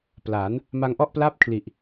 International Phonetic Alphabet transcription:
p l aː˩˦ n | m a˧ ŋ ʔ ɔ˥˩ ʔ p l a˥˩ p̚ kʰ l i˨˩ ʔ

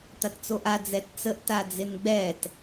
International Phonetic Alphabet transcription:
t̪ a t t͡s o ʔ a d͡z ɛ t t͡s ə ʔ t a d͡z ɪ n ɡ͡b ɛ t

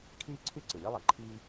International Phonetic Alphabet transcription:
kʰ iː˥ ǀʰ y˥ ǀ ɯ˩ lʲ e˥ lˠ ɐ˩ ǃʰ i˥

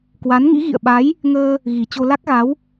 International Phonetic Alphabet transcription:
k w a˨˦ n ŋ ḭ˧˥ ɣ ḭ˧˨ ə̯ ɓ a˨˦ j | ŋ əː˧ | ɣ i˨˩ t͡ɕ o˧ l a˦˥ k̚ ɣ a˨˦ w

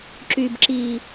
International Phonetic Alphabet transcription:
ǁ y˨ b ǁ iː˨

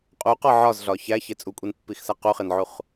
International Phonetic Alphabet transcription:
qʼ u q ɒ ʕ ɒ z ɮ ɒ ç æ ç e t͡sʼ u kʷʼ i n pː i x s æ q u χ e n ʕ u χ

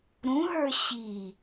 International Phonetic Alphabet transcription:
ɾ ũ ɦ ə˞ ɕ i

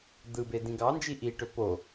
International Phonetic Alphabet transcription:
d̪ ɯ b e d ĩ ɡ ɑ n d͡ʒ i ʔ i ʈ ø p o

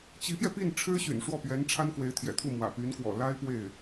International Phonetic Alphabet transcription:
t͡ɕ i˧˥ p j ɛ˧ p i˥˩ n ʈ͡ʂʰ ɻ̩˥ ɕ y̰˨˩ n ʂ w ɔ˥˩ p ɥ ɛ˧˥ n ʈ͡ʂʰ a˥ n k w e˧˥ ɪ̯ t̪ʰ j ɛ̰˨˩ t̪ʰ u˥˩ m w ä̰˨˩ p y˧˥ n k w ɔ̰˨˩ l a˥ ɪ̯ p w e˥˩ ɪ̯

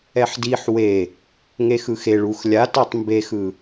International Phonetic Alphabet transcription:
ɛ ħ d i ħ w e | ŋ e x ɯ x e ɭ u x lʲ a t a tˤ m b e x ɯ

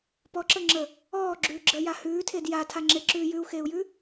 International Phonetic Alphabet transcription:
p ɔ ǁ ə ŋ͡ǁ ə | ɔː ɡ͡ǁ ʉː ɡ͡ǁ əː j a h ʉː tʰ e d j a tʰ a ŋ͡ǁ e ǁ ʉː j ʉ u̯ x eː u̯ j ʉ

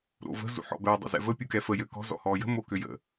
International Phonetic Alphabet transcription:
ɾ o̰ v ə̤ z ṵ ħ ɔ̰ b ɛ dˤ ə̰ z ɛ̰ v ə pʲ u k ɛ f ə j ø k ɔ̤ z ɔ̰ h ɔ j ə̤ m o k ø j ə̰

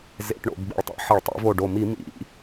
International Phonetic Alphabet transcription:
z ḛ˧˩˧ ʈ ɳ o̰˧˩˧ b ɡ͡b ḭ˧˩ ɭ tˤ ḛ˧˩˧ ħ ə˧˩˧ ɭ tˤ ḭ˧˩˧ v o˧˩ ɖ o˧˩ m i˧˩˧ m ḭ˧˩˧

